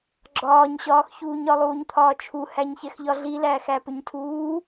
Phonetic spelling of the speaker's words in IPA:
ɡ͡ǁ ɒː ɲ ɕ ɒː x ç uː ɲ ɒ lˠ uː ɲ t̪ʰ ɒː t͡ʃʰ u h æ ɲ ç ɛ x ʎ ɒ ɮ i l æː x æ p ʏ ɲ tʰ uː

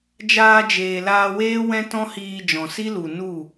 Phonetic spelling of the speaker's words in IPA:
d͡ʒ aː˧ d͡ʒ eː˨ l aː˧ w eː˦ w ɛ̃˦ t ɔ̃˦ h iː˧ d͡ʒ ɔ̃˨ s i˦ l u˨ n u˦˨

